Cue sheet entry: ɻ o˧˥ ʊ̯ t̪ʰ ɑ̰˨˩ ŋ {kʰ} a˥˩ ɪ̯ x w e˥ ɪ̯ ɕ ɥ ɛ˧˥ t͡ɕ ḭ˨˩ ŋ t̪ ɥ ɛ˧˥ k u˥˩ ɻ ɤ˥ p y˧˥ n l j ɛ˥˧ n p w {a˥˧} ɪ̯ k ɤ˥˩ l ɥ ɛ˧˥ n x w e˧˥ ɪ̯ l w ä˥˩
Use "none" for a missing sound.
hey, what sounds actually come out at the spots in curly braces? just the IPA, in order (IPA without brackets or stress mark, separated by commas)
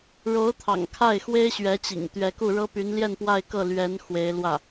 kʰ, a˥˧